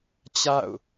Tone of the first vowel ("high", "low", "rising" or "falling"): falling